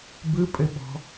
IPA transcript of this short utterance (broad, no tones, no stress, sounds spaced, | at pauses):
b ɯ pʼ ɘ ɓ ɔ̤